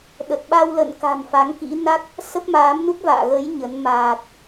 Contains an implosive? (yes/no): yes